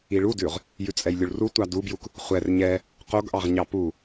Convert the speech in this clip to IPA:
iɭudʉʁ | jʉt͡sʼɛjlʲuɭru tʷɑdubjuk | χʷɛr ɲɛ | qoɡʔɑʁɲɑ pu

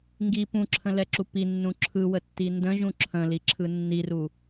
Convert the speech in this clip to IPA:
ŋɡi pũǁʰə̃lɛǁu pinːũ ǁʰɯwətːi ndə̃ʒũ ǁʰə̃liǁʰɯ nːiru

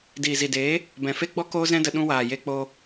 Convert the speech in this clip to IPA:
diː˨zi˨deː˨˦ | bɛ̃˨fe˦ɡ͡bɔ˦ koː˦zɛ̃˦də˧ ɗũ˧waː˨je˧ k͡po˧

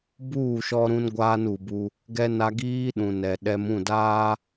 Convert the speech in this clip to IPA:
buː˦˨ʃɔ˦ɾũ˦n ɡʷaː˦nu˨bu˦ | ɡɛ˦na˦ ɡiː˦ɗũ˨ nɛ˨ɗɛ˦m ũ˦˨daː˦

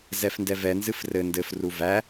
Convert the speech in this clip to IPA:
zɛfndɛvɛ nzɨfrɘ ndɘf ruvæ

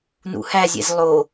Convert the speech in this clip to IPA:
nṵhæzʲḛz lˠo

